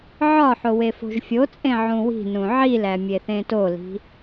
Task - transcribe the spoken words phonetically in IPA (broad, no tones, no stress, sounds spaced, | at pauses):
ʕ ɒ ħ o w e f o̤ ʒ fʲ o t͡sʼ ẽ ʕ ũ w i̤ n ũ ʕ i l æ mʲ e θ ẽ t o l i̤